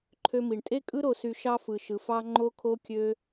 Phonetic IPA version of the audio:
ǃʰ ø˧ m i˨ ɳ tʼ e˦ kʼ ɯ˦ ɾ o˧ s y˧ ʃ ɑ˧ f ɯ˨ ʃ ɯ˨ f ɑ˧ ŋ͡ǃ o˦ kʰ o˦ kʲ ø˦

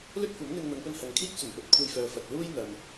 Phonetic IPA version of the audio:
l ɵ˥ t̚ kʷ ɐ˨˥ m n̪ ɪ˧ ŋ n̪ ɐ˨˧ ŋ p ɵ˧ n h ɐ˨ ŋ kʰ iː˥ k̚ t͡s ɵ˨˩ n p ɵ˨˥ t̚ kʷʰ e˧ j f œː˨ f ɐ˨ t̚ l uː˥ j n̪ ɐ˨ m

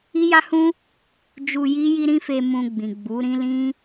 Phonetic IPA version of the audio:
i˦ j a˦ h ũ˦ | d͡ʒ u˧ j i˦ j i˦ ɾ ĩ˦ f e˧ m ũ˧ ɡ͡b ĩ˨ ɡ͡b u˨˦ ɾ ĩ˦ l ĩ˦

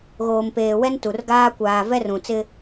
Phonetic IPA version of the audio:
ɣ oː˨ m p eː˨ w ɛ˦ n t u˨ r ɡ aː˦ kʷ aː˨ v ɛ˦ r ũ˨ t͡s ɪ˦

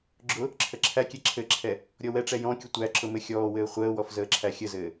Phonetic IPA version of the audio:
ɡ͡ǁ ʊ | ǁʰ ə ǁʰ æ kʲ ɛ ǁʰ ɘ ǁʰ ɛ | ɾʲ ɔ w ɛ ʈ͡ʂ ɛ j ɔ̃ kʲ ʊ tʷ æ ǁ ʊ m ɘ xʲ ɔː w ɘː χʷ əː w ɔ f z əː ǁʰ æ xʲ ə z ɘː

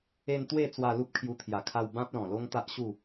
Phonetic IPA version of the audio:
e˧ n t̪ w e˥˧ t͡s w a˧ l u˦ p̚ kʰ j u˧ t̪ʰ j a˨˩ kʰ a˧ w b ã˦ p̚ l ɔ̃˨˩ l o˦ ŋ t̪ a˦ ʔ ɕ u˥˧

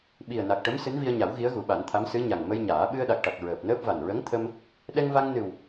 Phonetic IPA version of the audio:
ɓ i˨˩ ə̯ n a˨˩ k̚ ʈ ə˧˥ m s ɨ˧˥ n v i˧ ə̯ ɲ a˨˩˦ w ɣ i˧˥ ə̯ ɣ u˨˩˦ ɓ a˨˩˦ n t̪ʰ a˧˥ m s ɨ˧˥ ɲ a˨˩ ŋ m ə˧ j ɲ aː˨˩˦ ɓ ɨ˧ ə̯ ɗ a˨˩ k̚ ʈ a˨˩ k̚ ɹ əː˨˩ p̚ n əː˦˥ p̚ v a˨˩ n ɹ ə˧˥ ŋ t̪ʰ ə˧ m | ɗ ɛ˧ ŋ v a˧ ŋ n ɨ˨˩ w

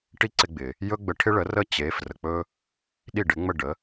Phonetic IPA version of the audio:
ʈ i˥ ǀ ɪ˧ ɡ͡b ɪ˩ | j ɵ˥ ɡ͡b ə˧ ʈʰ ɪ˥ ɭ ə˩˥ r ə˥˩ t͡ɕ e˩˥ f r ə˩ k͡p ɵ˧ | ɗ i˥˩ ɖ ɪ˩˥ ŋ͡m ə˥˩ ɖ ə˩˥

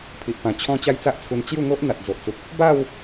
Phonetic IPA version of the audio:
pʰ i˨ ʔ p ã˨˩ t͡ɕʰ ɔ̃˦ t͡ɕ a˦ j t͡s a˦ ʔ t͡sʰ u˧ n t͡ɕ j u˥˧ ŋ o˦ ʔ n̪ a˨ t̚ d͡z o˨ ʔ t͡s u˨ k̚ | b a˥˧ w

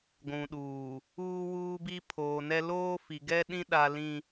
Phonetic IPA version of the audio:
ɡʷ ũ˨ ɗ uː˨ | uː˦ w uː˦ b i˦ pʰ oː˨ n ɛ˦ l oː˦ f i˨ ɡ ɛ˦ ɗ ĩ˦ ɗ a˦ l ĩ˦

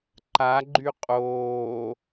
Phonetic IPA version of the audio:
ǃ a ɡ͡ǃ y qʼ oː

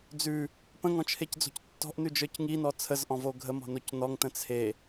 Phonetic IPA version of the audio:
d͡z ʉ | p ə̃ ŋ ɔ̃ t͡ʃʰ e c d͡z o̤ c tː ɔ̤ ʔ n ʉ d͡ʒ ə˞ c ŋ i n ɔ t͡sʰ ə z ʔ ɔ̃ v o ɡʱ ə m ɔ̤ n o c n ɔ ŋ t ə̃ t͡sʰ e

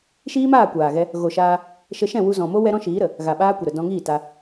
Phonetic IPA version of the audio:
ʃ iː˦ m aː˦˨ kʷ aː˨ ɣ ɛ˧ | ɣ o˨ ʃ aː˧ | ʃ ə˧ ʃ ɛ̃˦˨ w u˧ z ɔ̃˨ m o˦ w ɛ˦ ɾ ɔ̃˦ ʃ iː˨˦ ɾ ə˨ | ɣ a˨ ɓ aː˦ kʷ ə˨ ɾ ə˨ d ɔ̃˧ ŋ iː˦˨ t a˧

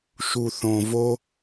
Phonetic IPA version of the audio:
ʃ u˨ θ õ˨ v o˧

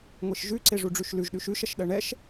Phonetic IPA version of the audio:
ŋʷ e ʃ ʒ ʉ ǀ e ʐ u ɖ͡ʐ ʉ ʃ l ʉ ʒ ɗ ʉ ʃ ʉ ʃ ɐ ʃ ɗ ɜ ɳ ɛ ʃ

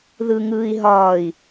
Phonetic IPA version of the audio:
ð ɯ ŋ ɯː i̯ ɦ ɒː i̯

